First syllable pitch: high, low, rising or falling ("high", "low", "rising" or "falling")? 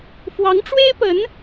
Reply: rising